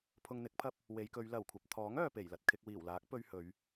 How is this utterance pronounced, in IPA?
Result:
pʰ ʊ˧ ŋ n̪ ɪ˨˥ k̚ pʰ ɐ˥ p̚ | w e˨˧ j k ɵ˨˧ ɥ l ɐ˨˩ w kʷʰ ɐ˨ p̚ t̪ʰ ɔː˨˥ ŋ œː˨ p e˨˩ j l ɐ˨ t̚ kʰ ɪ˧ k̚ w iː˨˩ w l aː˨˥ k̚ p ɵ˧ ɥ h ɵ˨˧ ɥ

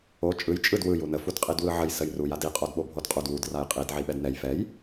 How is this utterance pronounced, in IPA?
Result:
o t͡ʃʼ ɯ j t͡ʃʼ ɯ d w ɯ j u n ə f u d qʼ i d w ɯ ʕ ə j s ə j r u j a d i qʼ o d ɓ o bʱ o d qʼ u d w u d r a j qʼ i d ʕ i ɓ ɛ d n ɛ j f ɛ j

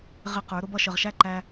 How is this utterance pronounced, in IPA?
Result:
ʁ ɪ˦ q ə˞˨˦ ɾ ʊ˦ b ʌ˦ ʃ ə˨ ʁ ʃ æ˦ ǃ æ˧

